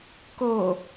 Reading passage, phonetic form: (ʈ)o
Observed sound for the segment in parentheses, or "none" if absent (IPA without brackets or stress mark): k